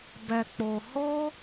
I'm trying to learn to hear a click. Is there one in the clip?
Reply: no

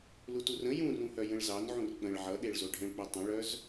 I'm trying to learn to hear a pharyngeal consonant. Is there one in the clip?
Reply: yes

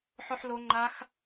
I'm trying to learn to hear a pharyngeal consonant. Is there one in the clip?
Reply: yes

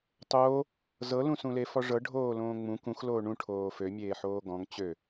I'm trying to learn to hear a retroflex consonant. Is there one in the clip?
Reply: yes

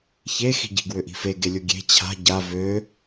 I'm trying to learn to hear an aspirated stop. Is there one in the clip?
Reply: yes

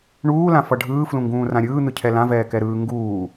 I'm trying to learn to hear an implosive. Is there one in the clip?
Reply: no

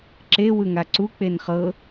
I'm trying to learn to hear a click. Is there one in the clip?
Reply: yes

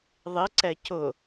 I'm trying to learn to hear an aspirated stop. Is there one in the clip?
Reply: no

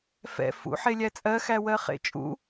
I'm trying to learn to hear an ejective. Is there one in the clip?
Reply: yes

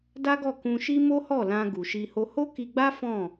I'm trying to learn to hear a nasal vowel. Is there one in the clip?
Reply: yes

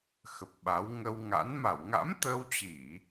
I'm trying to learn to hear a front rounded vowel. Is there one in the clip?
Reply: no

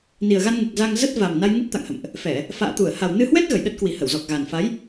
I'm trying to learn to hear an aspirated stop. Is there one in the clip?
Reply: no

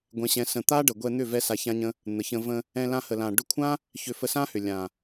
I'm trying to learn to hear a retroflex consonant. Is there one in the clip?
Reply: yes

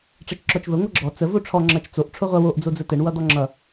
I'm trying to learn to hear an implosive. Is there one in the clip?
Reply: no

